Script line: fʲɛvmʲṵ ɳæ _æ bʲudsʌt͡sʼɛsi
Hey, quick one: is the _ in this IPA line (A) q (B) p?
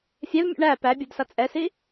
B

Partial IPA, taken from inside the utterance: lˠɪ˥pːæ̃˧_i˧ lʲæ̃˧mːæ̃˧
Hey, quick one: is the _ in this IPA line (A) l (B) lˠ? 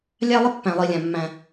B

